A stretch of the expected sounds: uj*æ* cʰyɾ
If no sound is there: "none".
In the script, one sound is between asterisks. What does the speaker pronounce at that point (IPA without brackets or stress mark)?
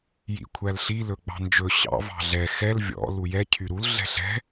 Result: ɛ